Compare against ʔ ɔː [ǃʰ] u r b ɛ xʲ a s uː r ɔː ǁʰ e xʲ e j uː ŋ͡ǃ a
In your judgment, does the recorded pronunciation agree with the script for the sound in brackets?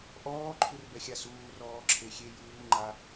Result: yes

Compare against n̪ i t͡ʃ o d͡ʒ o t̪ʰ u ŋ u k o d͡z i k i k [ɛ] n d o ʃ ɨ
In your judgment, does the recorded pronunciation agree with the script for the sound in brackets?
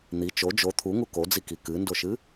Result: no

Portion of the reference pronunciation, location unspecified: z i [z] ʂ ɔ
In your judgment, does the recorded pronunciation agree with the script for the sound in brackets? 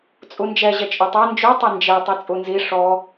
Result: no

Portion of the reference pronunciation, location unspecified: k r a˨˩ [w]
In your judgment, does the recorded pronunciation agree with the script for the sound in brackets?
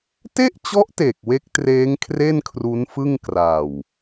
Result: yes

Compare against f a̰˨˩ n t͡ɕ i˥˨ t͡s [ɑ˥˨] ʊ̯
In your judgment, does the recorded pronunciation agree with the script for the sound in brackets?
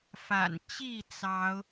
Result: no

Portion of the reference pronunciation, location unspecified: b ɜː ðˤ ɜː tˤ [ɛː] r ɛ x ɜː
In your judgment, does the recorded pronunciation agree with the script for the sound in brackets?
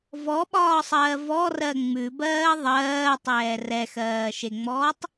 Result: yes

